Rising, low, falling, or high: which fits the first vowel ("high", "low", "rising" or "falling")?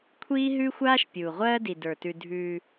high